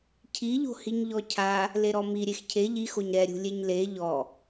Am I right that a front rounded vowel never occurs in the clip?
yes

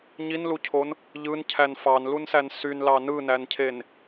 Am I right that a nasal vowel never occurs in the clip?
yes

